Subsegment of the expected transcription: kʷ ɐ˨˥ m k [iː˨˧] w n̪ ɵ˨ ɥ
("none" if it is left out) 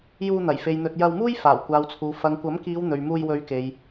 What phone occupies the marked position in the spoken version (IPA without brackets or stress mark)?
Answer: iː˨˧